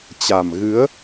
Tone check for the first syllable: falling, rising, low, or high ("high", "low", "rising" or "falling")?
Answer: low